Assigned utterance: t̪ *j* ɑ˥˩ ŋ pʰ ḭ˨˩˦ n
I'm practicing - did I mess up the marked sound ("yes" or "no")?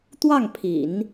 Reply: yes